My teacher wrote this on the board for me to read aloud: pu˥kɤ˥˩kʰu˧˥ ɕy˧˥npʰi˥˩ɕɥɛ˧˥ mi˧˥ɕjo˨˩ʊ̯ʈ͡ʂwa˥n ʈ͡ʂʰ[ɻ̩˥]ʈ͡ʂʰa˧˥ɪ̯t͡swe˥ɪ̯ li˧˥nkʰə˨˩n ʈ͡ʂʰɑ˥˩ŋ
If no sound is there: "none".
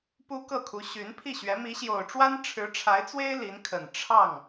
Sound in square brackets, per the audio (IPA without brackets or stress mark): ɻ̩˧˥